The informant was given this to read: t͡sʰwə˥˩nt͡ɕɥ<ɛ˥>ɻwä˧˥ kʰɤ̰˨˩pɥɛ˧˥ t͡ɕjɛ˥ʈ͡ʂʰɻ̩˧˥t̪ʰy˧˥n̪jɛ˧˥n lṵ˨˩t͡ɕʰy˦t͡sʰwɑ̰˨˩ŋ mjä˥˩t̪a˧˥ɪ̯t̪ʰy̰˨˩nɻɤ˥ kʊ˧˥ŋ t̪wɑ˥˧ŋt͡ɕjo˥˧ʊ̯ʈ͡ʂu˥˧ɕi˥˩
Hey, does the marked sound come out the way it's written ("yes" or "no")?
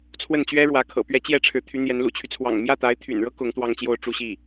yes